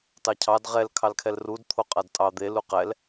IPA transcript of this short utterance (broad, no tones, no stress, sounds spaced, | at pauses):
t ɑ cʰ ɑ d ʁ ɛ l kʰ ɑ l kʰ ɛ l r u d t̪ʰ o qʼ a d tʼ ɑ d̪ e l u q ɛ l